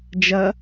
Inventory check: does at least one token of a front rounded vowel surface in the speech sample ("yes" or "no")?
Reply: no